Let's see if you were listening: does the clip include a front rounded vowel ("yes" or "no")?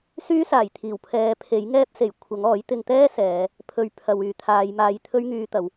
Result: yes